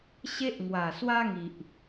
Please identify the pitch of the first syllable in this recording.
high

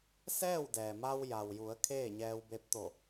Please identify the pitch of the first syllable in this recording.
falling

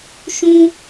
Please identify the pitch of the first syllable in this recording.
high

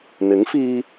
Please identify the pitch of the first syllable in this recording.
rising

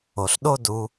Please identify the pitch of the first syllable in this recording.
low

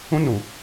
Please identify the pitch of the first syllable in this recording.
high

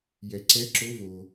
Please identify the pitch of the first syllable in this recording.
low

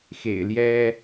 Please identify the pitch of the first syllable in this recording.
low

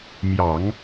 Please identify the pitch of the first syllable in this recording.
low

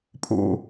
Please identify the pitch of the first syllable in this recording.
falling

